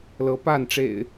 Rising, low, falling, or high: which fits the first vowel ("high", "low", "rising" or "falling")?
rising